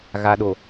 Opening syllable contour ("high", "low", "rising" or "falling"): low